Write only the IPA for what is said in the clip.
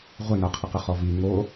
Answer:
ʁʷ ɪ n a qʰ ə q ə χ ɔ v i ŋ o

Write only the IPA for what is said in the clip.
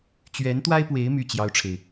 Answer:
t͡ɕ ɥ ɛ˧˥ n t̪ w a˥ ɪ̯ p w e˧˥ ɪ̯ m y˥˩ t͡ɕ j ɑ˥ ʊ̯ ʈ͡ʂʰ e˨ ɪ̯

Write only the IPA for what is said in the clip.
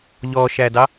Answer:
ʎ ɔ ʃ æ d ɑ

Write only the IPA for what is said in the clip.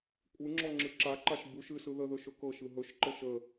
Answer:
kʷʼ ɨ ŋ͡ǁ ɔ ŋ͡ǁ ɨ ǁ a ǃ a ʃ b u ʃ ɨ s ɯ ð ə ð ɵ ʃ ɵ k ɤ ʃ ɯ ɦ ɵ ʃ ǃ ɤ ʃ ə

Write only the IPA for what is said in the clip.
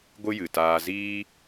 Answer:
ɡʷ ɨ˦ j ɨ˨ t aː˧ z iː˦

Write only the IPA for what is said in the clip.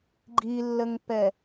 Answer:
ɡ͡ǃ i lː ə ŋ p ɛ

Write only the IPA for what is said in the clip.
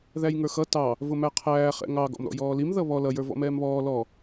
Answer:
ð æ j ŋ ə˞ x ʌ t ɑ | v ʊ m æ qʰ æː χ ɛ̰ ŋ ɑ ɡ ɔ̰ m ɾ ɔ̰ j ɔː l i m ð ʌ β ɔ l ʌ j ə˞ v ɔ̰ m ɛː m β ɔː l ɔ

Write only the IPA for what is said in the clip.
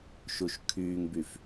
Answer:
ʃ u ʃ kʰ yː ŋ b y f

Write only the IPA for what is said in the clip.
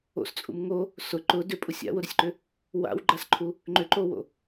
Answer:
o̰ s t͡sʼ ṵ m ŋ o | s ʊ ǃ ʊ d ʏ pʼ u sʲ a̰ w ʊ ɾ ʏ sʲ ǃ ʏ | w a̰ w ɡ͡ǃ a s ǃʰ u | ŋ͡ǃ ʏ ǃ o w o̰

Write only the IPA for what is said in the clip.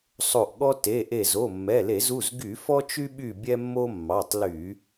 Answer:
sˤ o˧˩ ʔ ɠ ɔ˦ t e˩˧˩ ʔ e˧˩ z o˩˧˩ mː ɛ˩˧˩ l e˧˩˧ z u˩˧˩ z ɡ y˧˩˧ f ɔ˦ t͡ʃ y˦ ɓ y˧˩ bʲ ɛ˦ mː o˦ mː ɑ˩˧˩ tˤ l y˧˩˧

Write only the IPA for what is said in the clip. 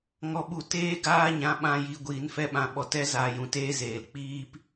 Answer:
ŋ ɔ˧ ɓ u˧ t eː˦ ɡ aː˦ ɲ ã˧ ɓ ã˦˨ j i˧ ɡʷ iː˨˦ n f ɛ˦ ɓ ã˧ ɓ ɔ˧ t ɛ˦ z aː˧ j ũ˨ t eː˦ z eː˨ l k͡p iː˦ p

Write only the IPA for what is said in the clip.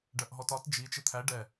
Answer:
ɖ ɜ ʔ ɦ ɔ t ɒ t d͡ʒ i t͡ʃ ɪ t̪ʰ æ ɖ ɛ

